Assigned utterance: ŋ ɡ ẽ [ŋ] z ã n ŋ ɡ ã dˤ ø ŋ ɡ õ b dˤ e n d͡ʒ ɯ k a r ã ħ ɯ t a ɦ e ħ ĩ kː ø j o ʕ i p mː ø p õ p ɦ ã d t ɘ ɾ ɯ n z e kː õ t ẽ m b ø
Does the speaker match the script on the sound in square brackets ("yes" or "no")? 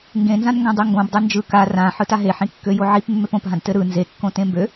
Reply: no